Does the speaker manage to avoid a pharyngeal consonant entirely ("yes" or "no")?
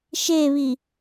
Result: yes